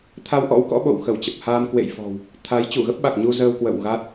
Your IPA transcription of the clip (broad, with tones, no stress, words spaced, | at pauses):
t̪ʰa˧wʔɔ̰˧˥wkɔ̰˧˥ ɓo̰˧˨wxə˧˩wt͡ɕə˨˩p̚haː˧m kwḛ˧˨jfɔ̤˨˩w | t̪ʰa˨˦j t͡ɕu˧˩ɣə˦˥p̚ɓa˨˩k̚ɲu˧ zəː˧wkwə̰˧˨w ɣa˦˥t̚